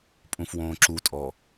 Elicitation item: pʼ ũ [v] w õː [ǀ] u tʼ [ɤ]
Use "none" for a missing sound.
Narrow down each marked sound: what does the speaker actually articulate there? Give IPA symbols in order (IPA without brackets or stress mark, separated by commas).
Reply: f, ǁ, ɔ